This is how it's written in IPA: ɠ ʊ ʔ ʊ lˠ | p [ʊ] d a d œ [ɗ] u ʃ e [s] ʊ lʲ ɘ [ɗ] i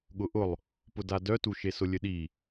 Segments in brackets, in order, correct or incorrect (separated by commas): correct, incorrect, correct, correct